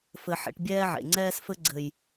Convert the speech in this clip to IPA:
f ɘ˨ ħ ḛ˨ ʈ bʲ ɛː˦ ʕ ḛ˨ ŋ͡ǀ ɛː˦ s f ɘ˧ ɡ͡ǀ ɘ˨ j

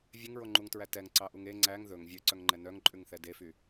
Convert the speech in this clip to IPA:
vʲ e ŋ ɹ o ŋ͡ǃ u ŋ t ɹ æ t ɛ ŋ ǀ ɑ ʔ u ŋ e ŋ͡ǀ æ ŋ ð ɵ ŋ vʲ ø ǀ œ ŋ ŋ͡ǃ ɛ n œ ŋ ǃʼ ʉ ŋ θ ɛ d e f y

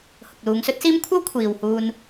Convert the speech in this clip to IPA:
h ʊ˨ k̚ l uː˨˧ ŋ s ɵ˥ t̚ s iː˥ m kʷʰ ɐ˥ w kʷʰ iː˨ w h uː˧ n

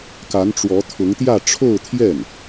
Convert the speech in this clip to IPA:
k a˧˥ n ʈ͡ʂ w ɔ˧˥ t̪ʰ ʊ˧˥ ŋ t̪ j ä˥˧ ʈ͡ʂʰ o˥˧ ʊ̯ t̪ʰ j ɛ˥˩ n

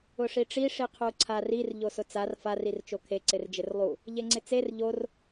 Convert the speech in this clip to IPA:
ʊ ʂ i ʈ͡ʂ i ʂ i qʰ u ǀʰ a r i r ʎ o s ʊ t͡s a r f a r i r t͡ʃ o kʰ e ǀ ɪ r d͡ʒ ɪ r lˠ u | ʎ e ŋ͡ǀ ɪ t͡s e r ʎ o r

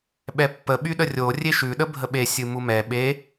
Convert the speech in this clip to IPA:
ɓ ɛ pː ə ɓ y ɗ ə rʲ o rʲ e ʃ ʉ ɗ ə bʱ ə ɓ e sʲ ɨ m u m ɛ ɓ e

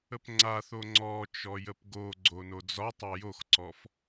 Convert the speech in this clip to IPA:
ə p ŋ͡ǀ a θ o ŋ͡ǀ ɔ t͡ʃ ɔ j ə p ɡ o ɡ͡ǀ o n o d͡z ɒ tˤ a j o x ǀ ɔ f

